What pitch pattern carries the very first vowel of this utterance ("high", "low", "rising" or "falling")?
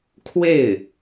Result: falling